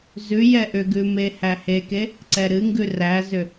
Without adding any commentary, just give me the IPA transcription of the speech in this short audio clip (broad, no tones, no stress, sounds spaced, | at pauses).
z ʉ j ɛ ʔ ʏ ɡ ʉ m e h æ h e k e | ǀ ɛ ɾ ɨ ŋ ɡ ʉ r æ z ʏ